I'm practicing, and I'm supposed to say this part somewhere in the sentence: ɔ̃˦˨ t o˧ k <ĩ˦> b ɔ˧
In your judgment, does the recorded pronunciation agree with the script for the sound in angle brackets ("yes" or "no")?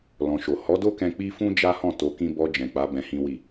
yes